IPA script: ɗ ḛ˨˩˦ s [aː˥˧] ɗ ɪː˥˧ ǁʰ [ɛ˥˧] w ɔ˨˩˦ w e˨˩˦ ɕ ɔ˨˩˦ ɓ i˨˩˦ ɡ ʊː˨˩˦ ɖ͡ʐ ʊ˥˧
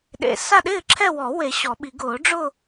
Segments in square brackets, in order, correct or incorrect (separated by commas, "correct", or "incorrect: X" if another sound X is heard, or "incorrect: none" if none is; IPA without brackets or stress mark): incorrect: a˥˧, correct